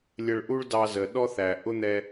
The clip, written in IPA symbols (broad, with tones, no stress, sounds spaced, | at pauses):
lʲ ə˧ ɭ ʔ u˥ ɭ d ɑ˧ z ə˩ ɗ ɔ˥ θ æ˩ ʔ ʊ˥ n̪ ɛ˧